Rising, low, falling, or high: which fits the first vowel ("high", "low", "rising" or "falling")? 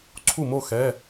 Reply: falling